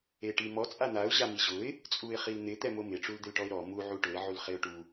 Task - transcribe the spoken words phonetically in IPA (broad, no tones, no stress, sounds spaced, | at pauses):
e ʈ i m ɔ t͡sʼ a n̪ a ʊ̯ ʑ a m i ʑ ʊ ɪ̯ | t͡sʼ u ɪ̯ χ i l n̪ ɪ t̪ ɛ m o m ɪ ʈ͡ʂ u l d̪ ɪ l ʈ ɔ ɪ̯ ɾ ɔ m u ʕ u ʈ ʊ ɪ̯ ʕ u l χ e ʊ̯ ʈ u